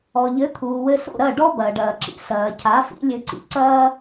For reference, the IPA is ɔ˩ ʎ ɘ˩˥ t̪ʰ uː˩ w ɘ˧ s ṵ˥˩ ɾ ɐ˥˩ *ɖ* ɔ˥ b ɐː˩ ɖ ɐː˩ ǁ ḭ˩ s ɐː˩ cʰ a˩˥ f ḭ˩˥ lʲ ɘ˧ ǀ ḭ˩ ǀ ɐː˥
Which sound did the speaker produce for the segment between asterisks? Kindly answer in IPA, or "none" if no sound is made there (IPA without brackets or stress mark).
ɖ